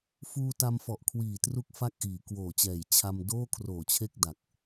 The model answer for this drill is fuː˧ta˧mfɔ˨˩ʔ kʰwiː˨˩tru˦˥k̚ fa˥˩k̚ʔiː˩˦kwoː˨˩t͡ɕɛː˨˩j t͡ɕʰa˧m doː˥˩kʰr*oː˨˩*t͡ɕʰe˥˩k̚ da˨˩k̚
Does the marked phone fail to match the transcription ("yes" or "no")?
no